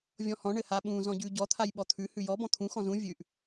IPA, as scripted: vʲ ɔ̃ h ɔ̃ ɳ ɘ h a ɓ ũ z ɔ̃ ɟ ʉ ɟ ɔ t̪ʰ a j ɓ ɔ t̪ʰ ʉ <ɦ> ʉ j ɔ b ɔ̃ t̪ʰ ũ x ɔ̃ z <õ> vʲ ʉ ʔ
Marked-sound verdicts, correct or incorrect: incorrect, incorrect

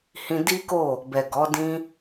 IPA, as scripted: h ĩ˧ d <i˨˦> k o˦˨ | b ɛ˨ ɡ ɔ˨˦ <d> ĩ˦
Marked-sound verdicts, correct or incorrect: incorrect, correct

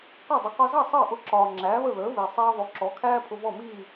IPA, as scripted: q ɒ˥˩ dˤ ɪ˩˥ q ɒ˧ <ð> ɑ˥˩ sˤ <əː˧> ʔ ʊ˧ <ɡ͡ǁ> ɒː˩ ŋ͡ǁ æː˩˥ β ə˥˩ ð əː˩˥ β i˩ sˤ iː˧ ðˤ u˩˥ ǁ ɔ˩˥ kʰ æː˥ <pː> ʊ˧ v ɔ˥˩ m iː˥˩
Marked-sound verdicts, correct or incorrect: incorrect, incorrect, incorrect, incorrect

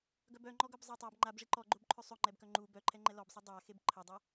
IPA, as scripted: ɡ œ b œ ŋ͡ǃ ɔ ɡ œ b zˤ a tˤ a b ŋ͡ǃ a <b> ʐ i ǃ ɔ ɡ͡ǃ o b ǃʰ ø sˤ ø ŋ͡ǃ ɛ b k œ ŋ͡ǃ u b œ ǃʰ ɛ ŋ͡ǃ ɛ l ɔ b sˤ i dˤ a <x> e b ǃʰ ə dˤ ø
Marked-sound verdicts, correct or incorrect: correct, correct

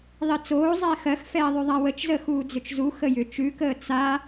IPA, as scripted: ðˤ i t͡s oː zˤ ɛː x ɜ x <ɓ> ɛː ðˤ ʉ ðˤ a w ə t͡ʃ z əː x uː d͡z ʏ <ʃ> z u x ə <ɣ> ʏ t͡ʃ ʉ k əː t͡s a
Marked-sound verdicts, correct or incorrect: incorrect, incorrect, incorrect

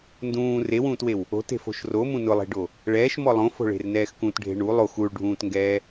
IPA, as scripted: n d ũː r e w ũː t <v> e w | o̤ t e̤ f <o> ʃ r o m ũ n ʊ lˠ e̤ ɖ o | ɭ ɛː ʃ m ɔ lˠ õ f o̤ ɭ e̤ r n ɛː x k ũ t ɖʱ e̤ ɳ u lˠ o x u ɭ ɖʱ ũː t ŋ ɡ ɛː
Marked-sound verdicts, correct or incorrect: incorrect, incorrect

